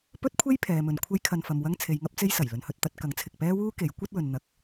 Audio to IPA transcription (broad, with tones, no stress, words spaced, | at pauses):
pɵ˥t̚kʷʰe˥j pʰɛː˨mɵ˨nkʷʰɐ˥jkʰɐ˧n fɐ˨mwɐ˥ŋt͡sʰe˨˧jŋɐ˥p̚ t͡se˥jsɐ˨˩j lɵ˨nhɵ˧t̚t̪ɐ˧t̚ kɐ˨˥ŋt͡sʰɪ˨k̚pɛː˥wuː˥ ke˨˥j kʷɐ˥t̚ wɵ˨nn̪ɐ˨˥k̚